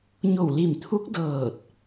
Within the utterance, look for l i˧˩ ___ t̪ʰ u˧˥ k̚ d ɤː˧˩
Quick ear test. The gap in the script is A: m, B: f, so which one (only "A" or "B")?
A